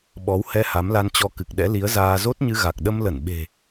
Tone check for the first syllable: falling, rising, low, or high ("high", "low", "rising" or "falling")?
rising